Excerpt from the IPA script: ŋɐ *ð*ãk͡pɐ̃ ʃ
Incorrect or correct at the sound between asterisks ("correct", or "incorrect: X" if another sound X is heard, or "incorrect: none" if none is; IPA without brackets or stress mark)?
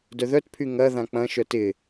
correct